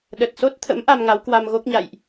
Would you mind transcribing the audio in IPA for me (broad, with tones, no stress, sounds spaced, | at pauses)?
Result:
ɗ ə˨˩ t̚ s o˦˥ t̚ t̪ʰ ə̰˧˥ m ʔ a˧ m ŋ a˨˦ w k w a˧ m ɣ o˦˥ k̚ ɲ a̰˧˨ j ʔ